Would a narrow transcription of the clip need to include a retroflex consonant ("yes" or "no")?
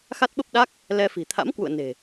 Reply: no